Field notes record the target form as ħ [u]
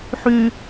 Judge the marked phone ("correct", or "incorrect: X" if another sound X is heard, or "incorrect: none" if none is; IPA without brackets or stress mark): incorrect: y